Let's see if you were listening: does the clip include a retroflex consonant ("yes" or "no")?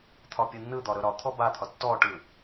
yes